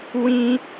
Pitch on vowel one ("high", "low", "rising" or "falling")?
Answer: high